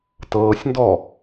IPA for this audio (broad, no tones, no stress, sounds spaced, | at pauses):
t ɤː sʲ n d ɔ